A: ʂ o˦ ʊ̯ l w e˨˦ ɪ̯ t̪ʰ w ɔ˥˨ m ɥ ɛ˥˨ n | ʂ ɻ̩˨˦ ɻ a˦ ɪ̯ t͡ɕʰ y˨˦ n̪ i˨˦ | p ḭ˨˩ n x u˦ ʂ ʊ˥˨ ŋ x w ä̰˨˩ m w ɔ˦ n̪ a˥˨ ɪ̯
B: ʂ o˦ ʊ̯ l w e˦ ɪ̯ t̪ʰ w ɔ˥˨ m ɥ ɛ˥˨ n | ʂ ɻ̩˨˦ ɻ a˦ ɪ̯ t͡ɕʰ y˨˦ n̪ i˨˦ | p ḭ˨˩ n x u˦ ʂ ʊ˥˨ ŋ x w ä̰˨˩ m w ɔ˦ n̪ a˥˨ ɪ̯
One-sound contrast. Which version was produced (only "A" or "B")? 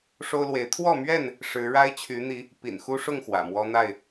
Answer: A